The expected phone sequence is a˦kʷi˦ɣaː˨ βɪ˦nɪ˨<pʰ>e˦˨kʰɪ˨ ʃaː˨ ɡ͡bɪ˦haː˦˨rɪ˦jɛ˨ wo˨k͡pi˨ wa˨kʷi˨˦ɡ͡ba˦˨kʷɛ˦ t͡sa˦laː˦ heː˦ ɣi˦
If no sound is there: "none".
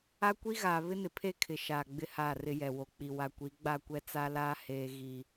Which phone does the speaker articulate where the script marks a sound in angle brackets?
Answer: pʰ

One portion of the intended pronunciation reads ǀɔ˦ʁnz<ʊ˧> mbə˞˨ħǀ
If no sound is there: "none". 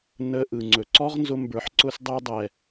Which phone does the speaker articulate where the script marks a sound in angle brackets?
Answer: ʊ˧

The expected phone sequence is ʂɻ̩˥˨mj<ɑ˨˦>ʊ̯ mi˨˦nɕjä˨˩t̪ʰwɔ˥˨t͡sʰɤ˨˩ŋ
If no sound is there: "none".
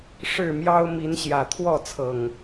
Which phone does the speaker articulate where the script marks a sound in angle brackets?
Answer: ɑ˦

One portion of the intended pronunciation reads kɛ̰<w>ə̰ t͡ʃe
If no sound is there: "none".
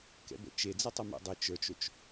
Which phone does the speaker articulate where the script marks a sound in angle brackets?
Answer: b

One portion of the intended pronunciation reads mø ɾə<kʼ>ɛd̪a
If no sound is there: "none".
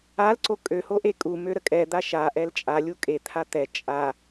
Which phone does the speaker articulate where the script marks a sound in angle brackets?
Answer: kʼ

